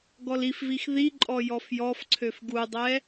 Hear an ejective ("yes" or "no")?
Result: yes